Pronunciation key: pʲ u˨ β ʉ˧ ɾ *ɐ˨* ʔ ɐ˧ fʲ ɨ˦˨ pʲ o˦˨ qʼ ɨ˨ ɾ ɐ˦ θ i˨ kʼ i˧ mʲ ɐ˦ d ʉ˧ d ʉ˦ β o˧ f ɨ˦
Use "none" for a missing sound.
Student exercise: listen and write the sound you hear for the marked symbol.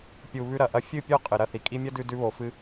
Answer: ɐ˨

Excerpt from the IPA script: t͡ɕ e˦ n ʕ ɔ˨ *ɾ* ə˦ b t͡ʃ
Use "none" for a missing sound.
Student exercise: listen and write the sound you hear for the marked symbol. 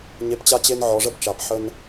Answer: ʐ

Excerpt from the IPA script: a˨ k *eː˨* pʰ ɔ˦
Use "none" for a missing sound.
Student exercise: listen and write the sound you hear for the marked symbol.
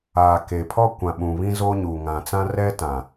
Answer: e˨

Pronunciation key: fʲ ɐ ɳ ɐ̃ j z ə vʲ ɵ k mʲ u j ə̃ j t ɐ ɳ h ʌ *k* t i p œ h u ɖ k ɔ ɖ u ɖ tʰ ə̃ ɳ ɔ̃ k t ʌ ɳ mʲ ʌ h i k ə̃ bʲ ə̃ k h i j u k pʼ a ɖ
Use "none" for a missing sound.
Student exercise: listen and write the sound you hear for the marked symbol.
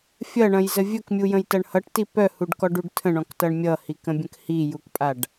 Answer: ʈ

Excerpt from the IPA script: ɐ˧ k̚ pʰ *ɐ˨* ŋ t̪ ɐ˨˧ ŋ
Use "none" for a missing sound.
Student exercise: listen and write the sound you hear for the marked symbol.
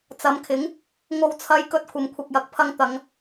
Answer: ɐ˥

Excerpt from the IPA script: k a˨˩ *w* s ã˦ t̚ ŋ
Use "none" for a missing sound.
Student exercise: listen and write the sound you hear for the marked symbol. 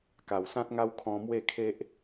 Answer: w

